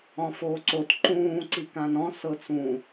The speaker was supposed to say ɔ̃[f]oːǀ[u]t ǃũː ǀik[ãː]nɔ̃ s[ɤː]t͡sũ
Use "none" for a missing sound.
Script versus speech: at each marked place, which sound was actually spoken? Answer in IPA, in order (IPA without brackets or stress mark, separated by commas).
f, o, ã, ɤ